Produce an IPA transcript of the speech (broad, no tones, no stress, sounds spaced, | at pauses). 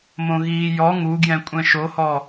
m õ ɣ iː j ɔ ŋ u ɡ j ɛ̃ kʷʼ ɛ̃ ʃ o h ɔ